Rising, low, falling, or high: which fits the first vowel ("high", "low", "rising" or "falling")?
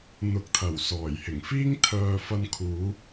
rising